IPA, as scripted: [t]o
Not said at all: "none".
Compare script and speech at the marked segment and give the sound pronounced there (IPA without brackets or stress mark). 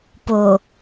p